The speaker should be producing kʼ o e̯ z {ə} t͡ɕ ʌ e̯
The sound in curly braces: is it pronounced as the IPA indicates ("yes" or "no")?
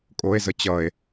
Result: yes